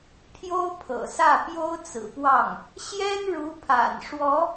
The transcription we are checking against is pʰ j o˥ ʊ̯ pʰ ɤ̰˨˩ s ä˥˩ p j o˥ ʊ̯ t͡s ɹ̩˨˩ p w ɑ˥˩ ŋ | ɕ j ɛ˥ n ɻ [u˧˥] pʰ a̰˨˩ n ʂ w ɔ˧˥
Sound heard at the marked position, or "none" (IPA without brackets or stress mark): u˧˥